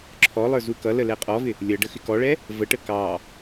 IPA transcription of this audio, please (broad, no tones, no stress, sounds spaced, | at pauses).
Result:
ǁʰ ɔ lˠ ə˞ z u k ʌ l ə l ɛ qʼ ɔ v ɪ | lʲ ʌ ɖ ə x ɪ k ɔ ɭ ɛ | v ə ʈ ə k ɑ